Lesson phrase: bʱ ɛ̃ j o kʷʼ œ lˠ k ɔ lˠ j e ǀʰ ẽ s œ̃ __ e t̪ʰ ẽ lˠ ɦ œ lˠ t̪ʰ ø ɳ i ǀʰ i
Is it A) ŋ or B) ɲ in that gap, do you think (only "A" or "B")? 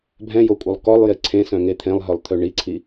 A